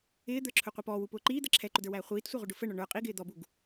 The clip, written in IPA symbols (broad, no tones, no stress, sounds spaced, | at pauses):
ɪː d̪ ə˞ ǁʰ ʊ qʷ i p ɔː w u p ʊː ǃ iː d̪ ə ǁʰ ɛ ǃ ʊ d ə˞ w æː χʷ iː t sʷ ə˞ ʁ u ɖ ʊ f ə ɳ ɔ ɳ ə˞ qʼ i ɡ ɪː d̪ ɔ b u ɡ